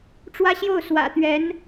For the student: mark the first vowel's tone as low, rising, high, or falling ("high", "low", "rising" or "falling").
high